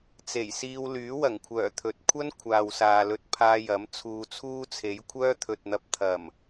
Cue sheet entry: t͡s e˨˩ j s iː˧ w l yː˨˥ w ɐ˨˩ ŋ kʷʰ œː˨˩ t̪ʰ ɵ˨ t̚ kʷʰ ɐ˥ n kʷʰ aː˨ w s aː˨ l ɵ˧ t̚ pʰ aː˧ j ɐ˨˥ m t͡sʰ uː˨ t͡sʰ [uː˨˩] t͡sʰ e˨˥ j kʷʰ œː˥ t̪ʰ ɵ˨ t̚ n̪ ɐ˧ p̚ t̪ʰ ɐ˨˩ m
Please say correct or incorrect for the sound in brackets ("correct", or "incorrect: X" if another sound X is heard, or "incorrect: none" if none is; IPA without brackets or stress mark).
incorrect: uː˥